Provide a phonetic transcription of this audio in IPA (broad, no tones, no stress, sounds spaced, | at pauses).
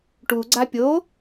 ʈ u ɡ͡ǀ a pʲ o